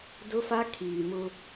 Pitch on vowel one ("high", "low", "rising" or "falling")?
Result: high